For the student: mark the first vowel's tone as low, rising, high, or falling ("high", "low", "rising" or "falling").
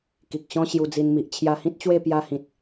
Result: low